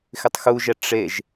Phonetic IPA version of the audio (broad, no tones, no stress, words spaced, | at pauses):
xɪtˤxuʒɛ ʈ͡ʂeʒ